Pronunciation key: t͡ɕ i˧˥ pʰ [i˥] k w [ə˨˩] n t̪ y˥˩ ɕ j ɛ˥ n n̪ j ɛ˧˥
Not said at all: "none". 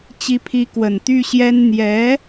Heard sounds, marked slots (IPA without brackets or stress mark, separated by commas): i˧˥, ə˨˩